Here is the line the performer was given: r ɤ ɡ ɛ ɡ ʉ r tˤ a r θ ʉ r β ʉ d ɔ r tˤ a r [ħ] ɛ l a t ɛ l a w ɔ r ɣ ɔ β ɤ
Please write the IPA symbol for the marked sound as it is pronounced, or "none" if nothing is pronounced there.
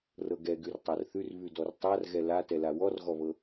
ɣ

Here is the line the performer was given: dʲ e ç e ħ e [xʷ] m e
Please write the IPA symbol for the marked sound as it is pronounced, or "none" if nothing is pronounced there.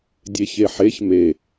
ç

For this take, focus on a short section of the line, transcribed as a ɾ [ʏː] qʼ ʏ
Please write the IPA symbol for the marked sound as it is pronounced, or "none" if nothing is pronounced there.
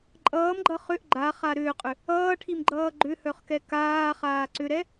ʏː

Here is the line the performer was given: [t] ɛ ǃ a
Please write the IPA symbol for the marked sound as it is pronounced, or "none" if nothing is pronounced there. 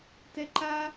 t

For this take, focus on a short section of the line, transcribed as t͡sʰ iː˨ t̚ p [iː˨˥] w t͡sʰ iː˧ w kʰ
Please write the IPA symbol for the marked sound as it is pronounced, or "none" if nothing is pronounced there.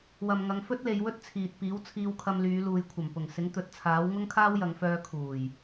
iː˨˥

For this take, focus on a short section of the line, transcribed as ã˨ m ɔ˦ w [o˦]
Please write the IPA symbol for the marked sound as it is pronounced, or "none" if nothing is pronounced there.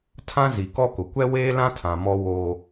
o˦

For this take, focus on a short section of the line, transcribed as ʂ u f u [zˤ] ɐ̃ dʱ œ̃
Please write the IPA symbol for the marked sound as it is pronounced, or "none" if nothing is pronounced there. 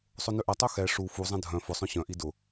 zˤ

